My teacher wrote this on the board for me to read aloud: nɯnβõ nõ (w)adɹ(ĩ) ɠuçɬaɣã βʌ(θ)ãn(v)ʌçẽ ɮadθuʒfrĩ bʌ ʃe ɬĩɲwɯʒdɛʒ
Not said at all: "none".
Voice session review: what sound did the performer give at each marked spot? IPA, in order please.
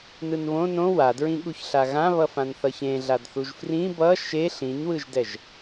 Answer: w, ĩ, f, θ

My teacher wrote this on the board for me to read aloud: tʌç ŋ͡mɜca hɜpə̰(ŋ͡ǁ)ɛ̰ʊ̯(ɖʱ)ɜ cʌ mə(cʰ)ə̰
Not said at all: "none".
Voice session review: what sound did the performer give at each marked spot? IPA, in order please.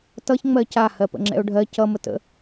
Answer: ŋ͡ǁ, ɖʱ, t

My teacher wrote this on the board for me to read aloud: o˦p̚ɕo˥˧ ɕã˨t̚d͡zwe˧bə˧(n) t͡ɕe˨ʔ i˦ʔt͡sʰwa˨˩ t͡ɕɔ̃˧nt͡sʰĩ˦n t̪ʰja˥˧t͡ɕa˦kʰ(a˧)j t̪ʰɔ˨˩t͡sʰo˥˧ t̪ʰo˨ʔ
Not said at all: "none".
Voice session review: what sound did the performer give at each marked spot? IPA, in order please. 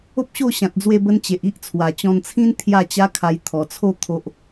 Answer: n, a˧

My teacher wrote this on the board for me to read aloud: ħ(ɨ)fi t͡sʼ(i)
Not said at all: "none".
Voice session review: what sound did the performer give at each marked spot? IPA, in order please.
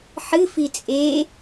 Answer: ɨ, e

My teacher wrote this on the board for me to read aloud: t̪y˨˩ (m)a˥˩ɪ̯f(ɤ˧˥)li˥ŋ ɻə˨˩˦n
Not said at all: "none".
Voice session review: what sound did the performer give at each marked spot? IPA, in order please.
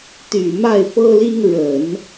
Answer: m, ɤ˥

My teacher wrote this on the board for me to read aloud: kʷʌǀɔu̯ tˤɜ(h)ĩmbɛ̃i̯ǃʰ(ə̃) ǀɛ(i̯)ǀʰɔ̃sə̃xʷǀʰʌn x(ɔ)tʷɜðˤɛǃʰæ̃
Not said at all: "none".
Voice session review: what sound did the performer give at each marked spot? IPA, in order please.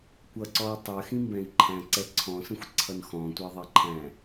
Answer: x, æ̃, none, ɔ̃

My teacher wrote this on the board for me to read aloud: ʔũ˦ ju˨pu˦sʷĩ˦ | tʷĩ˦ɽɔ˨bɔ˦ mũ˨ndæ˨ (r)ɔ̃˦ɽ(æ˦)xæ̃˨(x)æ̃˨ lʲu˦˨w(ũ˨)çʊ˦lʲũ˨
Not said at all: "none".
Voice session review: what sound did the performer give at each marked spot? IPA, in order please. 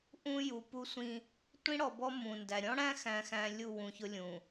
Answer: ɾʲ, æ̃˦, x, ũ˨

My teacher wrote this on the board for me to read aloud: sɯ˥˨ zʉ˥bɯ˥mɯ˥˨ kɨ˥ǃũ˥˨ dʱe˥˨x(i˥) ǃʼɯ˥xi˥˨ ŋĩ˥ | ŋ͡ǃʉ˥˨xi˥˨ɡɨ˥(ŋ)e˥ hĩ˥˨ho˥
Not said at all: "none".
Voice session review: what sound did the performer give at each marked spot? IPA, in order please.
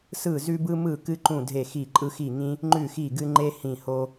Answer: i˥˨, ŋ͡ǃ

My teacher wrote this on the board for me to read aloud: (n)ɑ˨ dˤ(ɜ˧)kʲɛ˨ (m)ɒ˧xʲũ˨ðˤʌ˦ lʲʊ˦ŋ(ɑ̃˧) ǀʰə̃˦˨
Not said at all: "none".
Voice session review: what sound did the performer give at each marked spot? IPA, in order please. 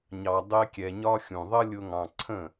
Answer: ɲ, ɛ˧, ɲ, ɑ̃˧

